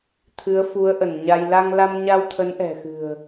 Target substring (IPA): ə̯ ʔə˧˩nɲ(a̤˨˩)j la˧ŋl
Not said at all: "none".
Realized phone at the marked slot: a˧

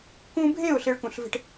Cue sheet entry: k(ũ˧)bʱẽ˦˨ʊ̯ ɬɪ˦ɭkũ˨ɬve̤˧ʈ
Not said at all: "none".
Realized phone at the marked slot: ũ˧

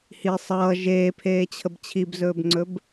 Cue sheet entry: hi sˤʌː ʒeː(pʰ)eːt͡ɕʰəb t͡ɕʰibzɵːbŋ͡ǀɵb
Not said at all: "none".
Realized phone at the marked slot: pʰ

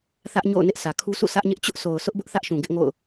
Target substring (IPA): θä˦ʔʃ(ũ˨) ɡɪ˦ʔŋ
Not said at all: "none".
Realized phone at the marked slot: ũ˨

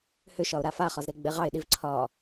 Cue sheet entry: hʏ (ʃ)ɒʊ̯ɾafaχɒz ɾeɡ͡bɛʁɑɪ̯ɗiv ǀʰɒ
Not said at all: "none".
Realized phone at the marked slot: ʃ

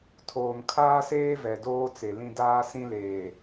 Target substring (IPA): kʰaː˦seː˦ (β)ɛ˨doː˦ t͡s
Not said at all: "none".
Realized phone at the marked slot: v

